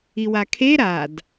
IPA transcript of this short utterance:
iwakʰe ɾad

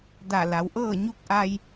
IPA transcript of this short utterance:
da˧˩la˩˧wʔɤː˥˨ ɲu˧k̚ʔa˧j

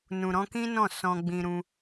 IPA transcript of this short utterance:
nũ˨ ɾɔ̃˧kĩ˦nɔ̃˦˨ sɔ̃˧ɡ͡bĩ˧ ɾũ˧

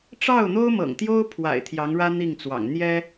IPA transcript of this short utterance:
ʈ͡ʂɑ˥˩ʊ̯n̪o˥ʊ̯mɤ̰˨˩ŋt̪jo˥ʊ̯ pʰwa̰˨˩ɪ̯ t̪ʰjɑ˧˥ŋɻä˥ n̪i˥˩ŋt͡swɑ̰˨˩ŋ n̪jɛ˥

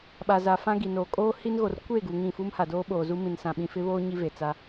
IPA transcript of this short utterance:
ɓa˨za˨ fã˦ɡi˨no˨ kʼoː˦ hi˦nɣo˨r kʷeː˦˨ɡu˨ ŋĩ˦˨ fu˦mha˨doː˦ ɓoː˨zu˦mĩ˨n sã˨ɓĩ˨fɪ˦βoː˦ ɲi˦ve˨t͡sa˦

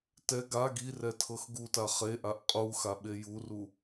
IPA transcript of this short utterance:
tɛ ɡa ɡi rɛtʰɤxɡuta χeʔaʔ qʼu xaɓejuru

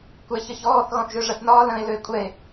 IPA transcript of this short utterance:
kʷɛ çəçɔːθ ɣɔ̃θʒøʐɐθnɒː lə̃e̯ løe̯kʷʼɛe̯

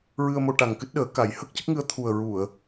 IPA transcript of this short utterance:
ɹɨ˧ə̯mo˧ ʈa˨˩ŋkɨ˦˥t̚ɗəː˨˩˦ka˨˩˦j hə˦˥k̚cə˦˥k̚ŋɨ˧ə̯t̪ʰu˨˩ə̯ ɹu˨˩˨ə̯

